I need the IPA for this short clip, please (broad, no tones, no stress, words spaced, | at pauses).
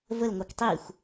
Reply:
vəlŋʷɛk tˤixʷ